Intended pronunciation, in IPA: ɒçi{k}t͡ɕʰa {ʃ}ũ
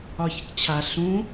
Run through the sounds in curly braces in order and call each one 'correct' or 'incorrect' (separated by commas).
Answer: correct, incorrect